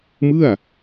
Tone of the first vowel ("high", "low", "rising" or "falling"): falling